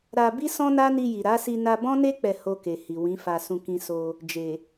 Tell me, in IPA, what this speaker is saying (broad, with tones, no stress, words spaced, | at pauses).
ɾa˧ bi˦sɔ̃˦na˦ni˧ ji˨ɾa˨˦si˧ na˧bɔ̃˦ne˦ k͡pɛ˧ ho˧ke˨hi˨ wĩ˨˦fa˧sũ˧ kĩ˧so˧ | d͡ʒe˨